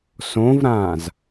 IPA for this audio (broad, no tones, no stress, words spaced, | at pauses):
sõvɾãːz